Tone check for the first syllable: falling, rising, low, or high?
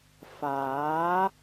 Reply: rising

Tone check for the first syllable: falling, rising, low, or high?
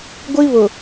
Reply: high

